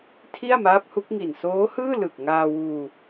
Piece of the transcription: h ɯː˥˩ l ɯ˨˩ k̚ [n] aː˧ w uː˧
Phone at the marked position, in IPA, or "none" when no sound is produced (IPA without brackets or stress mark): ŋ